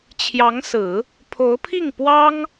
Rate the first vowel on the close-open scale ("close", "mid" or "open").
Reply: open